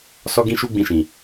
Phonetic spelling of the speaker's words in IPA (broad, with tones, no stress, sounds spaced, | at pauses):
s ɔ˦ ɡ ĩ˦ ʃ u˦ ɡ͡b ĩ˧ ʃ ĩ˨